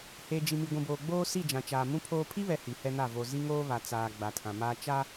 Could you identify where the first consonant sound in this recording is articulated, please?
glottal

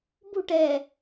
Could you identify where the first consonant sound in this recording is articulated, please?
labial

